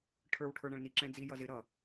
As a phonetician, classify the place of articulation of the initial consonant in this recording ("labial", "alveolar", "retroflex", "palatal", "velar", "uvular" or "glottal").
retroflex